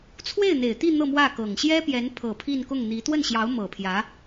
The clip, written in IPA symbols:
t͡sʰ w e˥˩ ɪ̯ n̪ e˨˩ ɪ̯ t̪ i˥˧ n̪ ɤ˥˧ m w ä˥˩ k ɤ˨˩ ŋ ɕ j ɛ˥ p j ɛ˧˥ n pʰ ɤ˨˩ pʰ i˥˧ n k ʊ˥˩ ŋ n̪ i˧˥ t̪ w ə˥˩ n ɕ j ɑ˧˥ ʊ̯ m ɤ˨˩ pʰ j ä˧˥

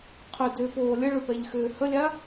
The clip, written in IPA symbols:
qʰ ʏ d ʏː p oː lʲ ə ɭ ʏ p ɛ ʎ x ʏː h ə lʲ a

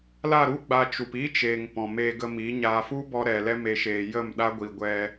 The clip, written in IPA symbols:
l a˦˨ ɾ u˦ ɡ͡b a˧ t͡ʃ u˨ p iː˦ t͡ʃ eː˨ ŋ p ɔ̃˨ m eː˧ ɡ ə˧ m i˨˦ ɲ aː˨ f u˦ b ɔ˧ ɾ ɛ˨ l ɛ˧ m e˨ ʃ eː˨ j ə˦˨ m ɗ a˦ ɡʷ i˨ ɡʷ ɛ˧

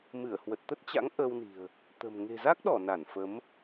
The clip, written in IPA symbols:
m ɨ˧˩ ə̯ h w ə˨˩ t̚ t̪ ə˦˥ t̚ t͡ɕ a̰˧˥ ŋ ʔ əː˧ w n i̤˨˩ ə̯ | t̪ ə̤˨˩ m ŋ e̤˨˩ z a˦˥ k̚ ɗ ɔ˧˩ n a˧˩ n f ə˨˦ m

